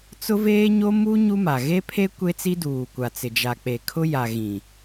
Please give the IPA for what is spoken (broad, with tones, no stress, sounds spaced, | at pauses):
t͡s ʊ˦ v eː˦ ɲ o˦ m u˦ ɲ u˦ m a˨ ɣ e˦ pʰ e˦ kʷ e˦ t͡s i˦ d uː˨ kʷ a˨ t͡s ɪ˨ d͡ʒ a˨ k͡p e˨ kʰ ʊ˦ j a˨ ɣ ĩ˨